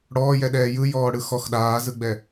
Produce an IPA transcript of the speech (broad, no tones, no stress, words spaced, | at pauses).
ɽɔːjɛɗɛː jɯjɔːɽɯ xɔx ɗaːzɯɡ͡bɛ